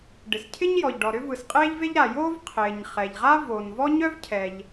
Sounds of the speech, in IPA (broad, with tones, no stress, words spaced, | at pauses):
ɖɪ˩scʰɪ˥ɲjɔ˩ʎɖɔ˩ ɾʏ˥vɯ˩sqʼeː˥ʎve˥ʎ ɾa˩joː˥v qʰɪː˩ɲ χɛ˩ʎʁa˥voː˩nvɔ˥ ɲœ˥vcʰɛ˩ʎ